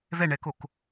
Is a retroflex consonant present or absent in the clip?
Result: present